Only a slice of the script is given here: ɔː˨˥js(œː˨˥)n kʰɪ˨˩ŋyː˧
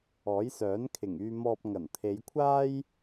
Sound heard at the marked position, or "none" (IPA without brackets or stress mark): œː˨˥